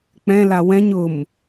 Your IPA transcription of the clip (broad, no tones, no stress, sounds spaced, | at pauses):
k͡p ɛ̃ l a w ɛ̃ ɲ ʊ m